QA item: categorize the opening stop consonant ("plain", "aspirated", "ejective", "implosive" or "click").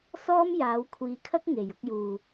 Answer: aspirated